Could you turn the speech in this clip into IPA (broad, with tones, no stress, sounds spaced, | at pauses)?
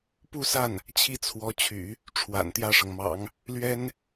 p u˥˧ s a˥˩ n | t͡ɕʰ i˥˩ t͡sʰ w ɔ˧˥ t͡ɕʰ y̰˨˩˦ | ʈ͡ʂʰ w a̰˨˩ n t̪ j ä˥˩ ʂ ɤ˩ ŋ m ɑ̰˨˩˦ ŋ | l ɥ ɛ˥ n